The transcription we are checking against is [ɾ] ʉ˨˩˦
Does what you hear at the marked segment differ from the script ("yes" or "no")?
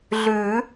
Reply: yes